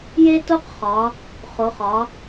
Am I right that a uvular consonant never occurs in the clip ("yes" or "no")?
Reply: no